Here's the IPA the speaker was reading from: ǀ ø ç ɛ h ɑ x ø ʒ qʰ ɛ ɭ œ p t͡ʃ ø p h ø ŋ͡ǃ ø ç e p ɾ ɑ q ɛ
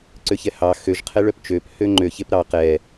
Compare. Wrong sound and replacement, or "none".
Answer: none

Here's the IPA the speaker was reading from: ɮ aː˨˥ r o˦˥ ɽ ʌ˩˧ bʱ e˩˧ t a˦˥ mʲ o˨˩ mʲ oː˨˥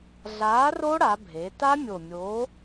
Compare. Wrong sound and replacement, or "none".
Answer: ʌ˩˧ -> a˩˧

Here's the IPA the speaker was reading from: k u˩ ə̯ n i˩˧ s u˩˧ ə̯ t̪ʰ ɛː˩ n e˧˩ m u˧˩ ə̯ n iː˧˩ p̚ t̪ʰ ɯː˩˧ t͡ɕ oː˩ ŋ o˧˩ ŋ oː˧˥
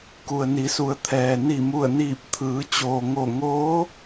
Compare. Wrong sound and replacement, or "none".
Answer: e˧˩ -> i˧˩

